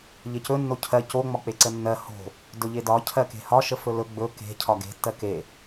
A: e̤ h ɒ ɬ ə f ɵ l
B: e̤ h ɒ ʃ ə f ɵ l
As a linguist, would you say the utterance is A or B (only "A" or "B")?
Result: B